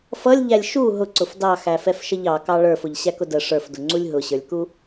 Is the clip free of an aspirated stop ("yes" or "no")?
yes